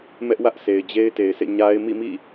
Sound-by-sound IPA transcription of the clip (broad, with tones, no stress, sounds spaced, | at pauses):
m ɛ˦ ʔ w ä˦ ʔ s e˨ ɪ̯ d͡ʑ e˦ ɪ̯ t e˨ ɪ̯ s ḛ˦˨ ɲ a˦ ɪ̯ m ḭ˦˨ m ḭ˦˨